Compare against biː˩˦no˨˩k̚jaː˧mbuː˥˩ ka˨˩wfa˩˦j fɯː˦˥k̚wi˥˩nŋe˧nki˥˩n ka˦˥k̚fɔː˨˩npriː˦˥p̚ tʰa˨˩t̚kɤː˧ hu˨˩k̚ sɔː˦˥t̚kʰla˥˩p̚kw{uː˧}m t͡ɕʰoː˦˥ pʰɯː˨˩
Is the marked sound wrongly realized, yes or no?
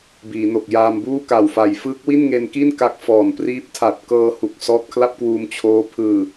no